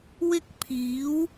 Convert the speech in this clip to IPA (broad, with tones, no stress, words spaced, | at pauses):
wɪ˥k̚ pʰiː˨˥w